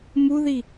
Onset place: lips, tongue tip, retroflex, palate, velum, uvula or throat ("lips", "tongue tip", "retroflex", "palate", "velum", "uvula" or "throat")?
lips